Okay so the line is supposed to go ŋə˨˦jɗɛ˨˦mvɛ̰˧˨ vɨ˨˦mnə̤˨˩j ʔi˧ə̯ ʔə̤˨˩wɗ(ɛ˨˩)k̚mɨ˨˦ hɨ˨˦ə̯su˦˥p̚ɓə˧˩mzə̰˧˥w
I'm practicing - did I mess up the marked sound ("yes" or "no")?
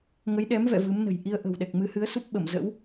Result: no